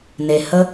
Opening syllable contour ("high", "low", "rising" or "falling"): low